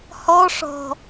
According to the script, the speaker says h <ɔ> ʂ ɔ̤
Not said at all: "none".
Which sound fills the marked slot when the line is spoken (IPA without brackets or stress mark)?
ɔ